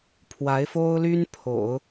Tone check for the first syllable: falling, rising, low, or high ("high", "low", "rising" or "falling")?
rising